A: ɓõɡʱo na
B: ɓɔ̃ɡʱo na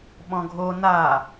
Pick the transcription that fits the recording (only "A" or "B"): B